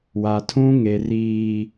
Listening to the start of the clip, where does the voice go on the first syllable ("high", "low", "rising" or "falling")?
low